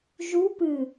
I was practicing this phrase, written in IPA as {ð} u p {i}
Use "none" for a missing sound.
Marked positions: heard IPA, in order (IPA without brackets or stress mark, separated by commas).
ʒ, ɨ